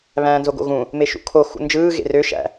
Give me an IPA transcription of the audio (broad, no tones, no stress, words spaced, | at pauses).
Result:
βæ̃ːnzoɡo̰ɣũ | meʃṵkʰo xṵnd͡ʒɯː ɣḛrø ʃæ̰